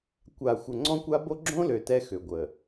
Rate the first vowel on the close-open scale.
open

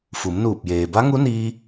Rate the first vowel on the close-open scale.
close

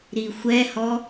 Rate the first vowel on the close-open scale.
close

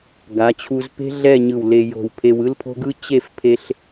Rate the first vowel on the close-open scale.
open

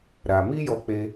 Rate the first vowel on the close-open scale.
open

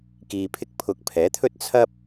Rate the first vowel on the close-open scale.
close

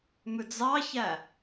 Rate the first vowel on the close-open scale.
close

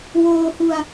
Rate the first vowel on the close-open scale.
mid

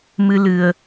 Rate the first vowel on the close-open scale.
close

